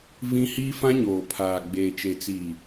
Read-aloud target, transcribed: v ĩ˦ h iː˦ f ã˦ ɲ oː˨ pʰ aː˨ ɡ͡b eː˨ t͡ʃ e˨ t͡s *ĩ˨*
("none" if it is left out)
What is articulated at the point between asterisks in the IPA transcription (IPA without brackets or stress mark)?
i˨